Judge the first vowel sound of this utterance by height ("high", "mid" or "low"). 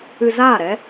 high